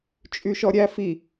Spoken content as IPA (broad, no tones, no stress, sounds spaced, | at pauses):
t͡ʃʼ y ʃ ɔ ɾʲ æ f i